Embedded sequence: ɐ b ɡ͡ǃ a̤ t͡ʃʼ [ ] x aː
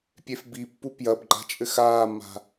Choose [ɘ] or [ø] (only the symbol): ɘ